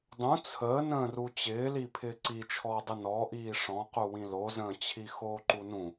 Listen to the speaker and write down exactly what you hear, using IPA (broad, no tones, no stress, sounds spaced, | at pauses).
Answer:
dˤ ũ t͡sʰ əː n ə̃ː r u t͡ɕ ɪː l i pʰ ɪː ǀ i t͡ʃʰ ɔː dˤ ɪ n ɔ ʔ iː ʂ ɔ̃ q u w ĩ l o z ə̃ː t͡ɕʰ i x oː ǃ u n ũ